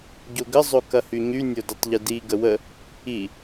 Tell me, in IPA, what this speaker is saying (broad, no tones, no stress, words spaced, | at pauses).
ɟoɡə zˤokɐhyɲy nʲodɪtˤʎɪdi ɡəwə | i